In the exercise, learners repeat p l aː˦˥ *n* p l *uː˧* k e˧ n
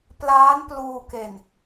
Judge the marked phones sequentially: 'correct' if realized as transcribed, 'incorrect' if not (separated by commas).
correct, correct